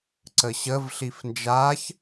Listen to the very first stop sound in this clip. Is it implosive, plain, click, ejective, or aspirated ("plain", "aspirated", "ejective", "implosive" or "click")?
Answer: click